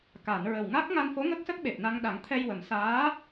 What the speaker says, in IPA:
k a˨˩˨ n ɹ ə˨˩ w ŋ a˦˥ k̚ ŋ a˧ n f o˧˥ ŋ ə˦˥ k̚ s ə˦˥ k̚ ɓ e˨˩ p̚ n a˧ ŋ ɗ a˨˩˦ ŋ t̪ʰ ɛ˧ j w ə˨˩˦ m s aː˧˥

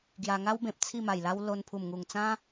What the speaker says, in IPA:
ɡ j a˧ ŋ a˦ w b ẽ˨ p̚ t͡sʰ i˥˧ m a˨˩ j l a˦ w l o˧ n pʰ u˨˩ m ŋ u˨˩ ŋ t͡s ã˦

